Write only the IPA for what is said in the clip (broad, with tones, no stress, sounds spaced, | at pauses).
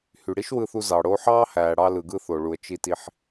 h y˩ ɽ i˥ ʃ w ɯ˧ θ u˧ z ɑ˩ ɽ o˧ ħ ɑː˥ h æː˩ ɽ ɑ˧ l ɯ˩ ɡ ɯ˧ θ o˩ ɭ u˩ ə̯ t͡ʃ i˧ t i˧ ħ